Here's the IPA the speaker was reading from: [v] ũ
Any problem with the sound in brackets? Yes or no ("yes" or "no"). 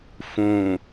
yes